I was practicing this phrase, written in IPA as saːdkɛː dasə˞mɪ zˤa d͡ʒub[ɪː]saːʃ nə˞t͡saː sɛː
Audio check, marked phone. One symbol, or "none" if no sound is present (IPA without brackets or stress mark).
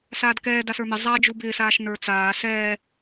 ɪː